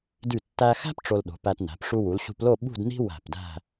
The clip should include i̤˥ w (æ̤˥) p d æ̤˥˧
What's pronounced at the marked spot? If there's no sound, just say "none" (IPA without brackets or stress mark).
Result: æ̤˧˩